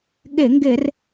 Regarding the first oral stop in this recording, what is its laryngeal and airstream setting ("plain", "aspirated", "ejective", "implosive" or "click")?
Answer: implosive